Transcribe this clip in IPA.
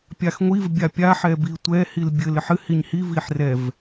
pʲ a x ŋʷ i v bʲ a pʲ a ħ ɛ b i tʷ ɛ h i l bʲ ɘ l ɘ ħ ɨ h i ɲ h i v i ħ r ɛ v

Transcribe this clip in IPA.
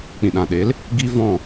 k͡p ĩ˨ ɗ ã˨ ɗ e˨˦ l | ɡ i˦ v ɔ̃˦˨

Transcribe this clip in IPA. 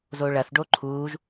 z oː ɭ ɐ θ ɖ o ǃʰ uː ʒ

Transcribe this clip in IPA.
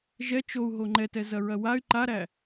ʒ ɛ t͡ʃ o u̯ ɦ o ŋ͡ǃ ɛ t ɛ z ɐ ɹ ɐ w a y̯ ǃ a ɾ æ

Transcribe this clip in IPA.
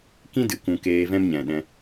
k ĩ˦ d ɨ˨ k ũ˧ k eː˧ v ɛ̃˦ m ɲ ɛ̃˨ ɗ ɛ̃˧

